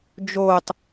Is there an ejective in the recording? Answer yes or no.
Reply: no